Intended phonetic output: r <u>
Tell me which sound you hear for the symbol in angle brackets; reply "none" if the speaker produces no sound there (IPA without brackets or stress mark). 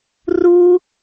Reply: u